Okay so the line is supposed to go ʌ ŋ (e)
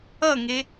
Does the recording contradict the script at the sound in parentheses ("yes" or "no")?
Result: no